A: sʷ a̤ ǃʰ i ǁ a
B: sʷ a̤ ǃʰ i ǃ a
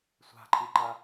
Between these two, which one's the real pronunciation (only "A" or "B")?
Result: B